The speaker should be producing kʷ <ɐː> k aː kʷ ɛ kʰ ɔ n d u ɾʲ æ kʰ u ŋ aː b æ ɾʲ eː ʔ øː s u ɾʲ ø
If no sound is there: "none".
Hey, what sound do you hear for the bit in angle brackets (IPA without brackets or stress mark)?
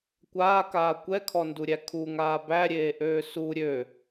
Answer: aː